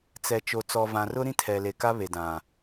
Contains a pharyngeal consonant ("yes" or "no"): no